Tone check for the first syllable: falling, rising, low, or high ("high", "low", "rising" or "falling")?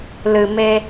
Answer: low